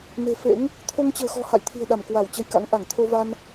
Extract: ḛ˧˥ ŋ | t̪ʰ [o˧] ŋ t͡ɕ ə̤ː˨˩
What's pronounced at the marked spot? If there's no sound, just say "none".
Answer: o˧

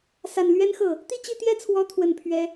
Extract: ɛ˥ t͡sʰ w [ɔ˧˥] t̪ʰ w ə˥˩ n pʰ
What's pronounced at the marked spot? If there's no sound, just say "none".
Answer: ɔ˧˥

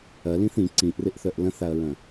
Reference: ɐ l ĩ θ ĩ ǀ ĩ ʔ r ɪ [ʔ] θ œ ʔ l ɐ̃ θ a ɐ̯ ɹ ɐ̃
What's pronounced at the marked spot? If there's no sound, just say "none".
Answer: ʔ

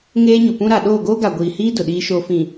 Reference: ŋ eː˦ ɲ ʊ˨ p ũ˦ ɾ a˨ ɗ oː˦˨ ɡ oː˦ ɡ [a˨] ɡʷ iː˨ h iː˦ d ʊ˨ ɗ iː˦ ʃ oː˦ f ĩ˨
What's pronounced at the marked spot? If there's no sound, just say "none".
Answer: a˨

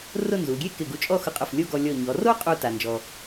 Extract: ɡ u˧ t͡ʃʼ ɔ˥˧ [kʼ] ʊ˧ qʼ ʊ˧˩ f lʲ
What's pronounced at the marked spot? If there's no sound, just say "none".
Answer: x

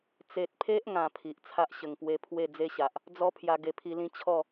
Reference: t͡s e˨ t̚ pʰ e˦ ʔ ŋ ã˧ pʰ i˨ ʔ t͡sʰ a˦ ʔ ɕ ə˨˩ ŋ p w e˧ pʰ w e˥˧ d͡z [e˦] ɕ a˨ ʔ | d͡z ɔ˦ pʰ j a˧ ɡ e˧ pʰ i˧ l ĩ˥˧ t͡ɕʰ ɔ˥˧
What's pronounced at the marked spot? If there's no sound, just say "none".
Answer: e˦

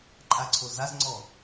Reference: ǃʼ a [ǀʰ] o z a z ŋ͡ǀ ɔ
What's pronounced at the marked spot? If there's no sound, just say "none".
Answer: ǀʰ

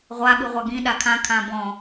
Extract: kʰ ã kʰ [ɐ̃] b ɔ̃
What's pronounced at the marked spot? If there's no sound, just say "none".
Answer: ã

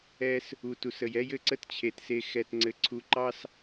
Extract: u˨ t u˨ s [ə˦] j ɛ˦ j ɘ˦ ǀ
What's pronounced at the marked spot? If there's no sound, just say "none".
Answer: ə˨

